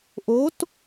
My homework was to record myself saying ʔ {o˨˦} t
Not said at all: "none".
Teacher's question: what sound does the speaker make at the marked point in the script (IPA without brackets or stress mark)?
o˨˦